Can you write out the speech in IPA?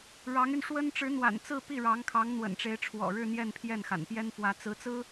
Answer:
ɻ ɑ˧˥ ŋ y˧ n ʂ w ə˥ n ʈ͡ʂ ɻ̩˧˥ n̪ w a̰˨˩ n t͡s ɹ̩˥˧ p i˥˩ ɻ ɑ˧˥ ŋ kʰ ɑ˧˥ ŋ n̪ w ə̰˨˩ n ʈ͡ʂ e˧˥ ɪ̯ ʈ͡ʂʰ w ɔ̰˨˩ ɻ ɻ̩˥˧ n̪ j ɛ˥˧ n pʰ j ɛ˥˩ n x a̰˨˩ n p j ɛ˥ n f w ä˧˥ t͡s ɹ̩˧˥ t͡s ɹ̩˥

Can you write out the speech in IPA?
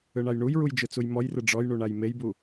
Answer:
ɯ ɳ a j ɳ u j ɹ u j d͡ʒ ɯ t͡s u j m ɔ j r ɯ ɖ͡ʐ ɔ j ɳ u ɳ a j m e j b u

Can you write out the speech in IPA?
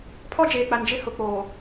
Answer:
pʰ ɔ˦ d͡ʒ eː˨ k͡p a˨ n d͡ʒ ɪ˦ h ʊ˨ k͡p oː˨

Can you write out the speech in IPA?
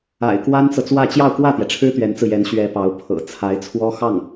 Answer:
a̰˨˩ ɪ̯ k w a˥ n t͡s ɤ˨ t͡s w ä˥˧ t͡ɕ j ɑ˥˧ ʊ̯ k w ä˥˩ t̪ j ɛ˩ ʈ͡ʂʰ ɻ̩˥ t̪ ɥ ɛ˧˥ n t͡s ɹ̩˧ j ɛ˧˥ n ɕ ɥ ɛ˧˥ p ɑ˧˥ ʊ̯ pʰ ɤ̰˨˩ t͡sʰ a˧˥ ɪ̯ t͡sʰ w ɔ˥ x ɑ˥˩ ŋ

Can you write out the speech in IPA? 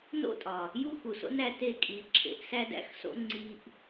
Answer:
n o̰˦˨ tʼ ɒ˨ | j u˦ x u˨ s o̰˦ n æ˧ t e˦˨ kʼ i˨˦ ǁʰ ḛ˨˦ ʔ s æ˦ d æ̰˦ x s o̰˦ ŋ͡ǀ i˧ ʔ

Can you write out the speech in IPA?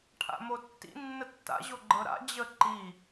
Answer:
ʈʰ a̰ m o tː ḭ nː ə tː a̰ ʑ o ɡ͡ǃ ɤ ɾ a̰ d͡ʑ ə ǃ i

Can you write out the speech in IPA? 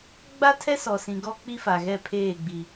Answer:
ɡ͡b a˦ tʰ ɛ˦ s ɔ˨ s ĩ˨ ɡ ɔ˦ k͡p i˦ f a˨ ɣ ɛ˦˨ pʰ eː˦˨ ɡ͡b i˨

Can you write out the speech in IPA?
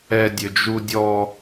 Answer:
ɛ dʲ ɵ d͡ʒ u dʲ ɔ

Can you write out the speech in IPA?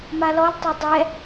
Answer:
m a l ɔ l tˤ o dˤ ɛ

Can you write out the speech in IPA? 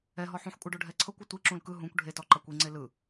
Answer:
ɛ ɦ ɔ ħ ũ ħ kʷʼ ɤ ɖ o ɖʱ ɛ ǀʰ ɤ kʷ ɔ tʷ i ǁ ũ l k ɯ ɦ ũ kʷ ɖʱ e t ɔ ǃ a kʷ i ŋ͡ǀ e l ɯ

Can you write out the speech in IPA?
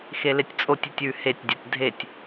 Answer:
x e l e tʲ t͡sʼ o tʲ i tʲ ʉ h e tʲ dʲ a tʲ dʱ e tʲ

